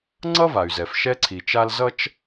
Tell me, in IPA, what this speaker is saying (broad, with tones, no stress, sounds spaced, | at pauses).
ŋ͡ǀ ʌ˥ v a˩ y̯ z ɛ˩ f ʃ ɛ˥ ǀʰ i˨ t͡ʃ a˦ l z ʌ˦ t͡ʃ